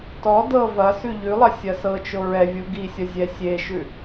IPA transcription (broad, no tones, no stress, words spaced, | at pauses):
tɔ dɤ vɐsʉ ʎʉlˠɐ sʲɐsɤt͡ʃo ɹɛvʲu ɡisʲɐ zʲɛsʲeʃʉ